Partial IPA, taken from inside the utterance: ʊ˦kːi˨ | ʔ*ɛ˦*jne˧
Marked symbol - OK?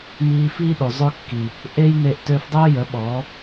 no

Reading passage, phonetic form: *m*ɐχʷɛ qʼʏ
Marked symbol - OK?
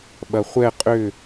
no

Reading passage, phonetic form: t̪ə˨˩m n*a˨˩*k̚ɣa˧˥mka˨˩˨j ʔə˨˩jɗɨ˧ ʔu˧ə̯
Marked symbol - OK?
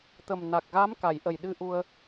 yes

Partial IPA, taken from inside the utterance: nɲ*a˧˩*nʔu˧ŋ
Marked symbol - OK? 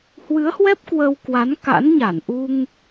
yes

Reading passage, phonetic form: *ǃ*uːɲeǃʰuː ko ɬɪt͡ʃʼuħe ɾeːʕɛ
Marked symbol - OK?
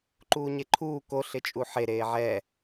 yes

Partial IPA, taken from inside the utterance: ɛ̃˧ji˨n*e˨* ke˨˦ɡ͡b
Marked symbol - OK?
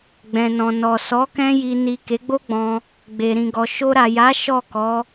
no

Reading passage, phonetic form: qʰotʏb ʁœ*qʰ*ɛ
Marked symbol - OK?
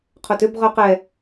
no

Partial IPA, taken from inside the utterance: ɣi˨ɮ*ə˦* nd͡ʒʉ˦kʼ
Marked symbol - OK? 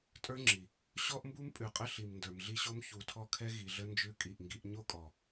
yes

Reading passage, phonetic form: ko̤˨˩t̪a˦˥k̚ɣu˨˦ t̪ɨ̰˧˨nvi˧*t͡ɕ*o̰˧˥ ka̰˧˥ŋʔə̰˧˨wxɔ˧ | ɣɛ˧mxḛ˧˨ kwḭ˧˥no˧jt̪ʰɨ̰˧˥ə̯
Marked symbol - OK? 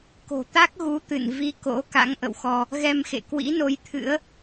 no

